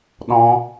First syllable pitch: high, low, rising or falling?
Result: high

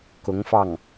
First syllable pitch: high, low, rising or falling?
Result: rising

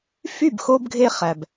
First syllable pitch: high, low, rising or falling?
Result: falling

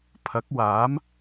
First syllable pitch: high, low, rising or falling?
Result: rising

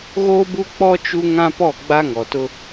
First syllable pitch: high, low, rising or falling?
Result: high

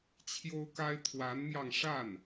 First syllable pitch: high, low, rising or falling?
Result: high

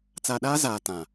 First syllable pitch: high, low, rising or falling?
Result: low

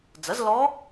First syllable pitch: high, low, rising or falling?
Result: rising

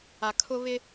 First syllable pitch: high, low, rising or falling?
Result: low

